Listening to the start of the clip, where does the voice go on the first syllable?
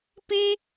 high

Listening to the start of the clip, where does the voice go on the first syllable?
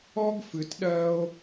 high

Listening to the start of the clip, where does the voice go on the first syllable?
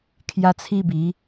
high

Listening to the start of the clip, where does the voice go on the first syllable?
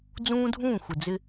high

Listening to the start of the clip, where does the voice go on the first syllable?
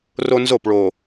high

